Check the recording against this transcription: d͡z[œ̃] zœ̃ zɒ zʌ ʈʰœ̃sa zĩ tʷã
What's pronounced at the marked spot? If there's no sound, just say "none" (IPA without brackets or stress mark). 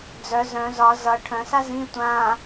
œ